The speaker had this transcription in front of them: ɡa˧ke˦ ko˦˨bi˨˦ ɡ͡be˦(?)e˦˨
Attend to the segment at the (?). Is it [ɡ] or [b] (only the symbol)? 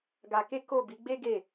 ɡ